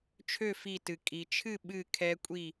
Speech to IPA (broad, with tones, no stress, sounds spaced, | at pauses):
t͡ʃʰ ø˥˨ f i˧˩ t ɨ˩ kʼ i˩ t͡ʃʰ ɨ˥˨ ɓ ɨ˥˨ kʰ ɛ˦˥ kʷʼ i˥˨